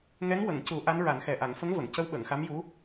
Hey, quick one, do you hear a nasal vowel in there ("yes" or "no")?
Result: no